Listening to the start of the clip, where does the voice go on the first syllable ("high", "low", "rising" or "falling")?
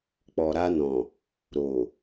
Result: low